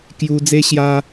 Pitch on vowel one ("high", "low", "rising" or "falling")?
high